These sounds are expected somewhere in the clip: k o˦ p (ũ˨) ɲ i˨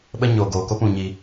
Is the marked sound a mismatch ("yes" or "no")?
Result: no